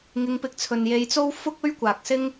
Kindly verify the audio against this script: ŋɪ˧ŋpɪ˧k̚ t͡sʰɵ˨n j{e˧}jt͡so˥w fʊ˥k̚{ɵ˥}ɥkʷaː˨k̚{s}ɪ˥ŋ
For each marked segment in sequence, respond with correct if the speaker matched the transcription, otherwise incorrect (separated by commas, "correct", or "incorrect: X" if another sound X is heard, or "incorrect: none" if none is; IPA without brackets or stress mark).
correct, correct, correct